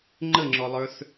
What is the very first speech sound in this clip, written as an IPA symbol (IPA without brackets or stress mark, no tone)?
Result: ŋ͡ǃ